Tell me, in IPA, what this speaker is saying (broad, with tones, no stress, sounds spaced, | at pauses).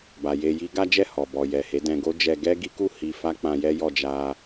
b a˨ j e˧ j i˦ ɡ a˦ d͡ʒ ɛ˦˨ h ɔ˨ b ɔ˨ j ɛ˨ h e˨˦ d ɛ̃˧ ɡ o˦ d͡ʒ ɛ˧ ɡ ɛ˦ ɡ i˦ k u˦˨ h i˧ f a˦ k͡p ã˧ j ɛ˦ j ɔ˧ d͡ʒ a˧